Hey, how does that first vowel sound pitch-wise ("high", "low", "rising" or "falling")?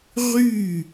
falling